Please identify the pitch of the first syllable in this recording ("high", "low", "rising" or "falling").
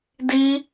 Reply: high